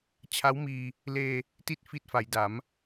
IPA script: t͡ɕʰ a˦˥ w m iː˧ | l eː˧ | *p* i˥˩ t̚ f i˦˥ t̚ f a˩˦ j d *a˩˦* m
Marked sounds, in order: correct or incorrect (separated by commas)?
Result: incorrect, correct